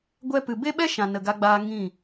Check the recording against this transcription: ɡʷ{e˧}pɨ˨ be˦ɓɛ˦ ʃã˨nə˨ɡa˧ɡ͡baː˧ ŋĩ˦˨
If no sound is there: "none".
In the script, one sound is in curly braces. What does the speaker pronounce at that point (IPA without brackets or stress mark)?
ɛ˧